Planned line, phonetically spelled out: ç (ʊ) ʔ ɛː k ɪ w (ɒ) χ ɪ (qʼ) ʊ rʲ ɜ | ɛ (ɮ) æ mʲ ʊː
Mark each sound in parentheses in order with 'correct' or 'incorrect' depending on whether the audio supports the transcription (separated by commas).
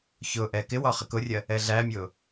incorrect, correct, incorrect, correct